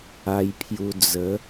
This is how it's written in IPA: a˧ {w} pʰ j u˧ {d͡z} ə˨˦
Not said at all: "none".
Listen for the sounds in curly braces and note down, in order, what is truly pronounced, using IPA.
j, d͡z

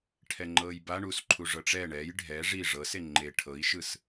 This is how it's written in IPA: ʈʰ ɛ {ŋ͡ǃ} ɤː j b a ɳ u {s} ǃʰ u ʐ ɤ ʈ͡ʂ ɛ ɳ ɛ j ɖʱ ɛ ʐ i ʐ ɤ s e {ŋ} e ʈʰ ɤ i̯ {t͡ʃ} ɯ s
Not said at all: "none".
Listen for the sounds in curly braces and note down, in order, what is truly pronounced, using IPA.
ŋ͡ǃ, s, ŋ͡ǃ, ʃ

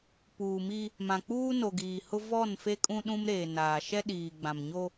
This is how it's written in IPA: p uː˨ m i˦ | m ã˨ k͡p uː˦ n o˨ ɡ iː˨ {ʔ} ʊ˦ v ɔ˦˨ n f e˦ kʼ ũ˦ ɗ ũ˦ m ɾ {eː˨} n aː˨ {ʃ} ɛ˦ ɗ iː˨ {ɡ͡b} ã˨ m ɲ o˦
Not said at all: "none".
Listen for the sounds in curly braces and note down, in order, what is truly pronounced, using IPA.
h, eː˨, ʃ, ɡ͡b

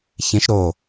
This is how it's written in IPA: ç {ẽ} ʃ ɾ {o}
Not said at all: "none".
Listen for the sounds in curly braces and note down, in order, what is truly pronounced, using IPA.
ẽ, o

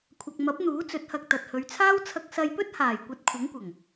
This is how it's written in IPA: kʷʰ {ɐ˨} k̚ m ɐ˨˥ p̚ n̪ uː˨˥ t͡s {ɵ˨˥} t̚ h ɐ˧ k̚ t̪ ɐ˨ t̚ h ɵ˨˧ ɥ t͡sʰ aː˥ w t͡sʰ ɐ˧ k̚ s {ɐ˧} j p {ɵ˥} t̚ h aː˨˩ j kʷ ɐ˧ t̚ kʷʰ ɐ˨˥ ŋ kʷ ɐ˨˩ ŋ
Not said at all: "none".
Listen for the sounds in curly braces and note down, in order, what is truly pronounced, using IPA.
ɐ˨, ɵ˨˥, ɐ˧, ɵ˥

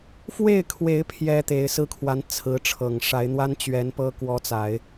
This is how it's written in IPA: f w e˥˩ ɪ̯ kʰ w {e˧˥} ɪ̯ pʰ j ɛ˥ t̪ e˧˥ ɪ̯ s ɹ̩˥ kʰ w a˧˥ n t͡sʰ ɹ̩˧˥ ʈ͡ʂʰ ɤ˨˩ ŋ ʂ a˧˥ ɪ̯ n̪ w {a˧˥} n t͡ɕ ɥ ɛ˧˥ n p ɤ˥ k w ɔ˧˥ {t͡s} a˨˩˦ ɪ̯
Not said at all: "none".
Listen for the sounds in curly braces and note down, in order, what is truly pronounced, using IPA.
e˧˥, a˥, t͡s

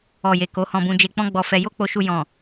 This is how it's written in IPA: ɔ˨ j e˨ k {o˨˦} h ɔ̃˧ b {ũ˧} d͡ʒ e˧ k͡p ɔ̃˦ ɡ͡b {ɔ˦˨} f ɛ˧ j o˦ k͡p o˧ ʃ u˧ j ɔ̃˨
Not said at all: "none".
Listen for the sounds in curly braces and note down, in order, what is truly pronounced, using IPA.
o˨˦, ũ˧, ɔ˧

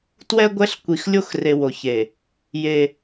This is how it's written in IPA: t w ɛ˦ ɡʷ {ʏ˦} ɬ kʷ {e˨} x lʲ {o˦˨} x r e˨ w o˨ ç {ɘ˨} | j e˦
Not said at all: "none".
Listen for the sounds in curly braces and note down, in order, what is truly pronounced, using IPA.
ɛ˦, i˨, o˦˨, e˨

